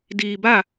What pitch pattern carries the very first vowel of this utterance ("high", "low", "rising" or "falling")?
low